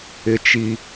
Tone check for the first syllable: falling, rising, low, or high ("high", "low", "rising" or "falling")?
high